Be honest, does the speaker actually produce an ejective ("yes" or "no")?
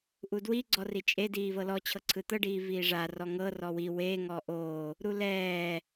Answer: yes